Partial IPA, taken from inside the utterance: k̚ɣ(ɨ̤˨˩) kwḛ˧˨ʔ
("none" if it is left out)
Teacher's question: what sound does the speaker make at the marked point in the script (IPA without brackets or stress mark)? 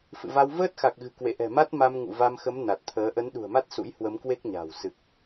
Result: ɨ̤˨˩